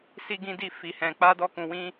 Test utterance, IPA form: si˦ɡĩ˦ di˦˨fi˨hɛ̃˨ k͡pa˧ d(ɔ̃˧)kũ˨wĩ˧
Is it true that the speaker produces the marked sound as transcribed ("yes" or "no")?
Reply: no